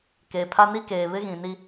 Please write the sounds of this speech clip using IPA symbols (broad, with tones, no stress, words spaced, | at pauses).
keː˨pʰa˦ni˦keː˨ βɪ˦ɣĩ˨ni˦